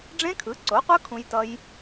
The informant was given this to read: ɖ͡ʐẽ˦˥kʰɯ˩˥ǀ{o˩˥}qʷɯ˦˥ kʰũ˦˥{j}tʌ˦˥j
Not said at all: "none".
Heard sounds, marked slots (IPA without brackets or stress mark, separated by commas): o˩˥, j